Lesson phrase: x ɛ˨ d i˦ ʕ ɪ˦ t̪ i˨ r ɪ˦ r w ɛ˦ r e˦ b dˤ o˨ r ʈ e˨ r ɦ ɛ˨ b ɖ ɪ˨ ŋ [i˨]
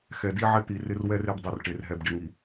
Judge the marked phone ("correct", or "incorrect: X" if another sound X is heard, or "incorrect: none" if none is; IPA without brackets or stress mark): correct